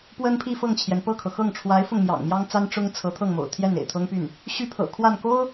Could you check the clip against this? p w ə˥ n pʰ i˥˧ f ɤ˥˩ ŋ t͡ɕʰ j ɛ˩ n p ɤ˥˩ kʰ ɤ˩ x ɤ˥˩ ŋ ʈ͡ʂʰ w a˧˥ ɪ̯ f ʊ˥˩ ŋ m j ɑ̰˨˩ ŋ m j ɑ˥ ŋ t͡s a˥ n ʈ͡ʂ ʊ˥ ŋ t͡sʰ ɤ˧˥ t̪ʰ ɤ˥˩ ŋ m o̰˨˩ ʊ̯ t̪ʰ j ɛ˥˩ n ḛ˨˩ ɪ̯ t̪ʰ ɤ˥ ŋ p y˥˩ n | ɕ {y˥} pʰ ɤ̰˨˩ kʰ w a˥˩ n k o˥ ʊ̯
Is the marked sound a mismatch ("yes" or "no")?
yes